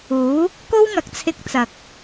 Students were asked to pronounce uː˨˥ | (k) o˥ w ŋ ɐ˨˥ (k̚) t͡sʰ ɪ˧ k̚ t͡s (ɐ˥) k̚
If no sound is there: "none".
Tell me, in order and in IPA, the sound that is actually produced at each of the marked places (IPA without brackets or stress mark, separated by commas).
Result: k, k̚, ɐ˨